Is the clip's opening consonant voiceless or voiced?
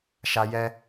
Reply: voiceless